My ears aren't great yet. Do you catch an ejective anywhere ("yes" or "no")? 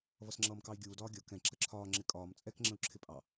yes